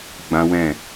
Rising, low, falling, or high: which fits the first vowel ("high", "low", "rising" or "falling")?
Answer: high